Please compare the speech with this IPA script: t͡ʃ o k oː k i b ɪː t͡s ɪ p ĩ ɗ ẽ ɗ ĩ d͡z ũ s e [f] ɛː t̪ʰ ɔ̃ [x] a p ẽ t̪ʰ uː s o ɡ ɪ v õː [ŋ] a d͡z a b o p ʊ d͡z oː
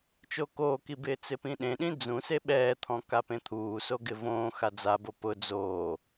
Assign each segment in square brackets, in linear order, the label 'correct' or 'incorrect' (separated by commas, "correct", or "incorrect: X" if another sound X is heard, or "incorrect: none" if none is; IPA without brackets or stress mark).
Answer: incorrect: ɓ, incorrect: k, incorrect: x